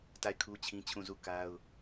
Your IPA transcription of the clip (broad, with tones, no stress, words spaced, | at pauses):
ta˦˨ɪ̯kʰu˦t͡ɕʰĩ˦t͡ɕʰũ˦˨ zu˦˨ ka˦ʊ̯